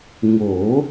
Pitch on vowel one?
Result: rising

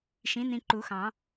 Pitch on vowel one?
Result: rising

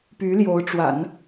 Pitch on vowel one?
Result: rising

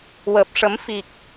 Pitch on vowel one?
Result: low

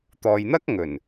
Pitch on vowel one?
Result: low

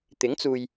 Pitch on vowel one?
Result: rising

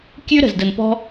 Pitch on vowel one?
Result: high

